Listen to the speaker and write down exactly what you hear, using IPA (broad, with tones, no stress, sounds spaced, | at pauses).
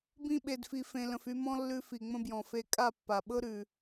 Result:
b ĩ˧ ɓ e˨ d f i˨ f ẽ˨ l ə̃˨ f y˧ m ɔ̃˦ lː ʉ˧ f i˨ ŋ͡m ə̃˦ b j ɔ̃˨ f e˦ kʼ a˦˨ pː a˨ ɓ ɤ˦ ɾ ʉ˨